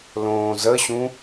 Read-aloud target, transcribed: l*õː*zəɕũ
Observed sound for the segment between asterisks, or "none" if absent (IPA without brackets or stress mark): õː